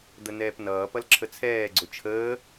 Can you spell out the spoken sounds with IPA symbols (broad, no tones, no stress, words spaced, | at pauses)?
d̪ənɛːpnʌːpʌl ǁʰət͡sʰɛːɡ͡ǀʊ t͡ʃʰəː